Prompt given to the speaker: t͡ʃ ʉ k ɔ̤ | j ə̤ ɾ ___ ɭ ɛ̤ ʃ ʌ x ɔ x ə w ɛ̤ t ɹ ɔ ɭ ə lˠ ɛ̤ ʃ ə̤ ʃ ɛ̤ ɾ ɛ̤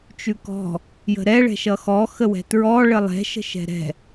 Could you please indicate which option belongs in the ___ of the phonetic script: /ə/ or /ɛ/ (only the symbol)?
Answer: ɛ